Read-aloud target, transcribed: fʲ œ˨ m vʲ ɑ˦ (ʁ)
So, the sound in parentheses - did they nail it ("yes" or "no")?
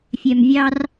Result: no